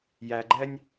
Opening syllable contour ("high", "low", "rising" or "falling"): low